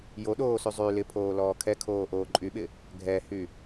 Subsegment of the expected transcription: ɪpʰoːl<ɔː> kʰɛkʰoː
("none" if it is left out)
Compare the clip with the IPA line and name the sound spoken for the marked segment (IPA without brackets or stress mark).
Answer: ɔː